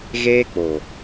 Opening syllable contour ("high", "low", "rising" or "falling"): high